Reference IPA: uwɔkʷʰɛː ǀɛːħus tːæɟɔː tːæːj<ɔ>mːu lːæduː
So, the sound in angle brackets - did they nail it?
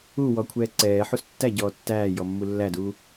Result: yes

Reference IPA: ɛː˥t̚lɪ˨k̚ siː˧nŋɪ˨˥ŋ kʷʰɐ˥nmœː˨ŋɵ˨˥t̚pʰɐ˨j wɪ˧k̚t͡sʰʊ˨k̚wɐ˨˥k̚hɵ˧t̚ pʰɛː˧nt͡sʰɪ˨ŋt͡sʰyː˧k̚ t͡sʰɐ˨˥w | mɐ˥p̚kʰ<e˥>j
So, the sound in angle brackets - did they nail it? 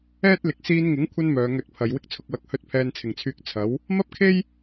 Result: yes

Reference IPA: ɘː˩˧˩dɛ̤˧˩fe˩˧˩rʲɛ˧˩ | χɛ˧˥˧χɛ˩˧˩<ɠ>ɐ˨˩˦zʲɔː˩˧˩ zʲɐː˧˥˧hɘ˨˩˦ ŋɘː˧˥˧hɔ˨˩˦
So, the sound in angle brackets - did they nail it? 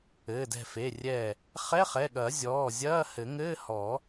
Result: yes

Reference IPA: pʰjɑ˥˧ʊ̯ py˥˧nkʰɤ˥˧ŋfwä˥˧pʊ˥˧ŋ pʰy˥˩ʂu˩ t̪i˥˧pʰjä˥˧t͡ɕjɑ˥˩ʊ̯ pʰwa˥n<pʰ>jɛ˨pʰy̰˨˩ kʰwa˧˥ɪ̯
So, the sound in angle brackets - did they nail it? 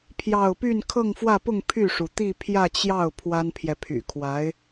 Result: yes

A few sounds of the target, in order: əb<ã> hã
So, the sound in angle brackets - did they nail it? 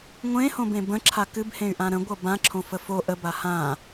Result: no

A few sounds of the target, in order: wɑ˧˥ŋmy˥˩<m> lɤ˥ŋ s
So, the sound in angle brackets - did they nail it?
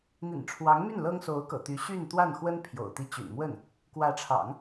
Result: no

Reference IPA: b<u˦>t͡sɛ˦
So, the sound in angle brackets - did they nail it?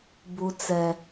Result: yes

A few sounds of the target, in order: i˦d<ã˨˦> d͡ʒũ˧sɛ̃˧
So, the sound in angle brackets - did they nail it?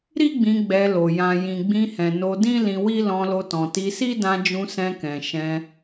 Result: no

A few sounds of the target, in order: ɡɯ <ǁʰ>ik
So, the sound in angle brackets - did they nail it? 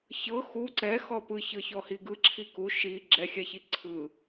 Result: yes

